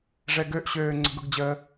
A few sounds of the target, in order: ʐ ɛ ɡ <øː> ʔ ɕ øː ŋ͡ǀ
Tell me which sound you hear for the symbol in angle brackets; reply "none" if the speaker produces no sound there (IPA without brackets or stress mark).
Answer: ø